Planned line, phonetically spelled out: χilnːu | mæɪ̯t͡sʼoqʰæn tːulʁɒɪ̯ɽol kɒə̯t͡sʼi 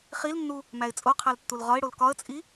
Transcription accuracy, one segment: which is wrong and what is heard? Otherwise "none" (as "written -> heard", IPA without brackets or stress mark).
n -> l